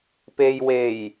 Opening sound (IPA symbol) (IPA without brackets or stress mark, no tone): p